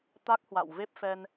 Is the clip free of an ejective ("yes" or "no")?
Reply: yes